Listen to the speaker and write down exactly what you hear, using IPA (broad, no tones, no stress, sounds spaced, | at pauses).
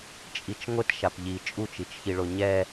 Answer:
t͡ʃʼ i t͡ʃ ŋʷ ɪ t ʃ a p ʎ i t͡ʃʼ u t͡ʃ i t͡ʃ ç i ɭ o ɲ ɛ